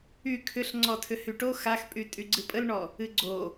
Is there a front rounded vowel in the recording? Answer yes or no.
yes